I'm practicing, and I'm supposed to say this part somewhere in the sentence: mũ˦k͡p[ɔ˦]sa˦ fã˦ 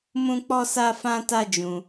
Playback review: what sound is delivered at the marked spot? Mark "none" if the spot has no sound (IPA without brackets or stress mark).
ɔ˦